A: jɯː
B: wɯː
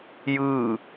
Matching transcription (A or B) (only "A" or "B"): A